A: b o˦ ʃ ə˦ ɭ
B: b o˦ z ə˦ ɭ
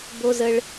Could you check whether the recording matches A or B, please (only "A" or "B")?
B